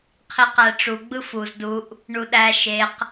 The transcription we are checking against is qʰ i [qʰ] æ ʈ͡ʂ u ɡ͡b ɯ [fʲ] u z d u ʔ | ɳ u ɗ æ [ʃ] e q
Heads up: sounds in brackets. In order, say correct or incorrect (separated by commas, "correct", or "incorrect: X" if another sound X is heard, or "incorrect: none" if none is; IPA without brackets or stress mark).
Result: incorrect: q, incorrect: f, correct